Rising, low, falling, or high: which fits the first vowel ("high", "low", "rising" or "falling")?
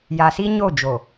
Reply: low